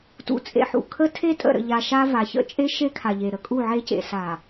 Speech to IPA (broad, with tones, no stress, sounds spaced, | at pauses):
t ṵ˨ t͡sʼ ḛ˨ ħ ṵ˨ kʰ ə˦ tʰ e˦ tʼ ə̰˨ ɾ ə̰˨ ʎ a˨ ʃ a˦ v a˨ ç ə̰˦ t͡ʃʼ e˦ ʃ e˦ kʰ a˨ ʎ e˨ ɾ ə˨ kʼ u˦˨ ʕ e˦ c ḛ˨ s a˨